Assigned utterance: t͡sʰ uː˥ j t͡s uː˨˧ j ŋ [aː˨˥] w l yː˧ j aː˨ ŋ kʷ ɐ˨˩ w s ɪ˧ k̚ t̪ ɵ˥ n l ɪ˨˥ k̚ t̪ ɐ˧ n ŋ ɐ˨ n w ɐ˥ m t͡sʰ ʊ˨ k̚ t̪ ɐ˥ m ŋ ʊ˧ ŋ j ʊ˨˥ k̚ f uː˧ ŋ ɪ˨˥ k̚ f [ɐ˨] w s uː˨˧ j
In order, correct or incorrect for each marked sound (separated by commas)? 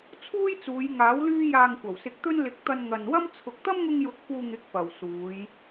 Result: correct, correct